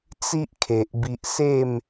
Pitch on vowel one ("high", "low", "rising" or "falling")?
high